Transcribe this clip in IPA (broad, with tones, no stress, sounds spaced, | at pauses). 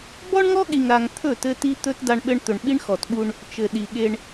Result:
b ɔ˦ ɳ ŋ ɔ˦ ɠ i˨ ŋ ɾ a˨ ŋ t̪ʰ ɵ˦˨ t ɘ˦ t i˦ t̪ ɵ˦ t d a˦ ɳ ɓ ɘ˦ ɳ t̪ ɵ˨ ɳ ɓ i˦ ɳ x ɔ˨ t ɓ u˦ ɳ | t͡ʃ ɘ˨ ɗ i˨ ɠ e˦ ɳ